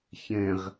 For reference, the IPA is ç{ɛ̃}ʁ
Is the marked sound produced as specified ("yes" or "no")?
yes